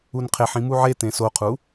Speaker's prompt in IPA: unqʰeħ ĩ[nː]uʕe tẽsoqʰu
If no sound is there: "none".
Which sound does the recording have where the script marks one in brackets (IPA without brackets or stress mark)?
m